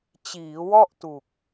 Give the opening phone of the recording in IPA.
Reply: t͡ɕ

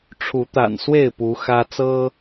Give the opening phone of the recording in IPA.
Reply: ʈ͡ʂʰ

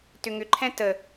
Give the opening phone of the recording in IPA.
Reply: t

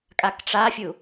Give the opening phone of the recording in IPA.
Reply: kʼ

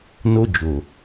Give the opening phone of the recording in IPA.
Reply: n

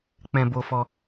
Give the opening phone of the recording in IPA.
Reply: k͡p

